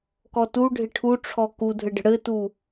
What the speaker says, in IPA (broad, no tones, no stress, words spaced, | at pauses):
kɔtu ɖʱɪʈʰuʈ͡ʂʰɔ kudʱɘɖə̤ ɽɘtu